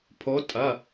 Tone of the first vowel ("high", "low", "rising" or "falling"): rising